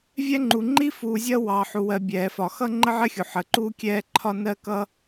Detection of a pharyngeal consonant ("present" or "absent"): present